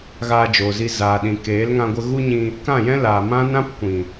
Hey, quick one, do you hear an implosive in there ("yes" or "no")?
yes